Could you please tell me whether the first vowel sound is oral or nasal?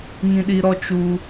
nasal